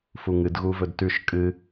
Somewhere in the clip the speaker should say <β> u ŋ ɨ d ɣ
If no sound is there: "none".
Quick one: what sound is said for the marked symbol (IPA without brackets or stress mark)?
f